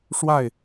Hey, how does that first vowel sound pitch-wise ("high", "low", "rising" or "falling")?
falling